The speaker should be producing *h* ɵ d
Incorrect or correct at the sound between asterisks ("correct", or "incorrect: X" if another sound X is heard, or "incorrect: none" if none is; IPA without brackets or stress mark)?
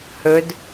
correct